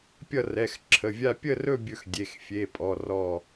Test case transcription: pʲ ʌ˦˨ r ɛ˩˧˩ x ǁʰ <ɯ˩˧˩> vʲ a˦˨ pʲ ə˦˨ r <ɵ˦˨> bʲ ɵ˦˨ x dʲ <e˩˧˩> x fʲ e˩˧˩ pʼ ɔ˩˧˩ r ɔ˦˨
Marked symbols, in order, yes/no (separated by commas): no, yes, yes